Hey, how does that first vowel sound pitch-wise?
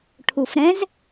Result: low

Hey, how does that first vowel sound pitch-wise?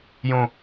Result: low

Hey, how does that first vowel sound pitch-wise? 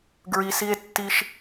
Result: low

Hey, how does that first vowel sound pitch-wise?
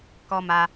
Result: high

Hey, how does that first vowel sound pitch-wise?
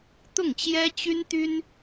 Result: falling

